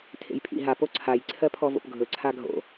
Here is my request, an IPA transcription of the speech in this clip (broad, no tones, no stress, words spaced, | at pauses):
tʰḛjpʰḭ ɦa poǀʰaj ǀʰɜpʰɔvo̰pɡʱɵ ǀʰaɡʱo̰